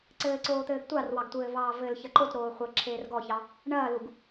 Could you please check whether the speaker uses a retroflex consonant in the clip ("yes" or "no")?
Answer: yes